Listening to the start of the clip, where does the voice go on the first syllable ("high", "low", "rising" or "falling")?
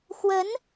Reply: rising